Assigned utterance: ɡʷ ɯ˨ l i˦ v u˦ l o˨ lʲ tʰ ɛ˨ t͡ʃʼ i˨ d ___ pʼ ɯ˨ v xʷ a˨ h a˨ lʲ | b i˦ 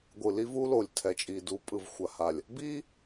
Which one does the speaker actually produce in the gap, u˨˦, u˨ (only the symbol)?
u˨˦